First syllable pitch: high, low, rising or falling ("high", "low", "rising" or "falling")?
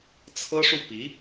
high